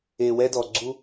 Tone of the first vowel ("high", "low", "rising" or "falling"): low